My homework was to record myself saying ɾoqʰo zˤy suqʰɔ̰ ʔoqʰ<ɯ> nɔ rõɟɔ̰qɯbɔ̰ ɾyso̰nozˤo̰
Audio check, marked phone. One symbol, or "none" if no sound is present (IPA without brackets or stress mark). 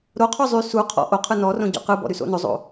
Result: ɯ